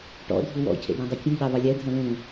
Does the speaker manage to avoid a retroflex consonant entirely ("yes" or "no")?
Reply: no